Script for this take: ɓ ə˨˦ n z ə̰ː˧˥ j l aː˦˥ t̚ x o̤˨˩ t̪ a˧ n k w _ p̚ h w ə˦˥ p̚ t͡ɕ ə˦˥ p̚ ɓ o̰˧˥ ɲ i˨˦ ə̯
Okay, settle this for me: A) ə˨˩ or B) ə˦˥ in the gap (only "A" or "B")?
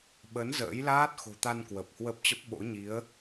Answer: A